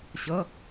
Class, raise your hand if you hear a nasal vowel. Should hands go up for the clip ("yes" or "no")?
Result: no